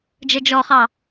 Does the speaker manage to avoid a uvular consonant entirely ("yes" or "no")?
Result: no